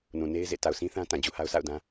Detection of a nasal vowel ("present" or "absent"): present